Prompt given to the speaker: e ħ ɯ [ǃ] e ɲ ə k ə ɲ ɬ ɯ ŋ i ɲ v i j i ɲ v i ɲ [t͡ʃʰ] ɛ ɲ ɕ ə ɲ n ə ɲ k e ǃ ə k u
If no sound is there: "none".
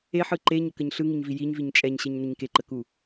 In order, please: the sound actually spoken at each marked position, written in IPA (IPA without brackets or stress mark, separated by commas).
ǃ, t͡ʃʼ